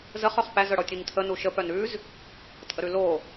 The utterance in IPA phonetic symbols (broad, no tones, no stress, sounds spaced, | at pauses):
z ə χ œ χ p æ z œ ɽ ɔ tʲ ʉ ɲ tʰ ə n u ʃ ə p œ n ʉ z | tʼ ə ɾ ʉ l o